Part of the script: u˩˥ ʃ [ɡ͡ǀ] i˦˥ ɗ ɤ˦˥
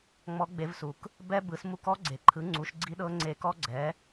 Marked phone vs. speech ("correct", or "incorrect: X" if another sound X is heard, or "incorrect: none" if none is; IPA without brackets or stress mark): correct